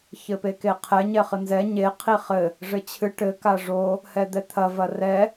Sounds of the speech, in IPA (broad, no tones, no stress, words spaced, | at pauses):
çɘpekeqʰɛ ɲɛχɨnzɛ ɲe qʰiχɘ | ʐɘt͡ɕʰɨ ʈɘ kaʐo | hɛd̪ɛt̪ʰɐ vɐrɛ